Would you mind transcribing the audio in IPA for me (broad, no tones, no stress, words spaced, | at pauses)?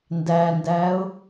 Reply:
ndændæːʊ̯